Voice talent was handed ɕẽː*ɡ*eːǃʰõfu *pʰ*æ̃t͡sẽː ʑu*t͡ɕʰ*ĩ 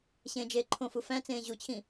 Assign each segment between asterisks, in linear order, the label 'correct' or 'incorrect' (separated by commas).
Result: incorrect, incorrect, correct